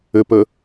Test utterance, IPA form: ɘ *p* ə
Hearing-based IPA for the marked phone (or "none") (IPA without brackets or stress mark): p